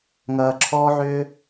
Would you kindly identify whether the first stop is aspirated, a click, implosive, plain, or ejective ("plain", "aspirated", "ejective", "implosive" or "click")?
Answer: click